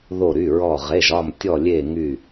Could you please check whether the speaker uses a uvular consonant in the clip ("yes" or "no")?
yes